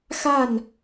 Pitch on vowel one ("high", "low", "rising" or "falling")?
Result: falling